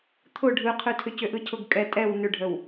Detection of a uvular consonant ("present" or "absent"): present